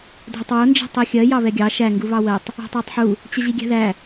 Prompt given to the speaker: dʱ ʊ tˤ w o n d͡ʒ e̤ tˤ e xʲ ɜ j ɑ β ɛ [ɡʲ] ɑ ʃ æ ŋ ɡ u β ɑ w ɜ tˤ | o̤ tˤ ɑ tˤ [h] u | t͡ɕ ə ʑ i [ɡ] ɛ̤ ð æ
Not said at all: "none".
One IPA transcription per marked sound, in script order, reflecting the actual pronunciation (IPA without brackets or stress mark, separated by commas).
ɡʲ, ħ, ɡʲ